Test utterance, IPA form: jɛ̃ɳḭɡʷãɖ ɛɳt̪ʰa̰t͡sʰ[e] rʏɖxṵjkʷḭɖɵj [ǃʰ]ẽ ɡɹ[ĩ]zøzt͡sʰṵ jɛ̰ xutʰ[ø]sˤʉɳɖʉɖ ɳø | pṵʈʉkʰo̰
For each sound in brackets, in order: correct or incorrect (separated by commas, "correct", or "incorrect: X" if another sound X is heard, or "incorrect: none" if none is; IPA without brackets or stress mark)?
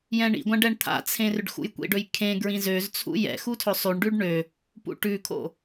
incorrect: ẽ, incorrect: kʰ, correct, incorrect: ɵ